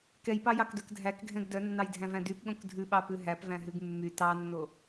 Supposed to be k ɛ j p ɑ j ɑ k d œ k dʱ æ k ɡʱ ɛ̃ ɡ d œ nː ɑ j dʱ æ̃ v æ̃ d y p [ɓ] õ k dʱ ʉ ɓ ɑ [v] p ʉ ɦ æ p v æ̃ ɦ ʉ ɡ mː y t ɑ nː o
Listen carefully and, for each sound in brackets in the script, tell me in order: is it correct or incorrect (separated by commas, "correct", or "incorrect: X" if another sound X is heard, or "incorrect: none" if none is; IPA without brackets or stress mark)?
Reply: incorrect: ɠ, incorrect: none